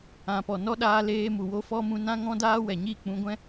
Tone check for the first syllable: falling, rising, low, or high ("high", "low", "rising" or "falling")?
low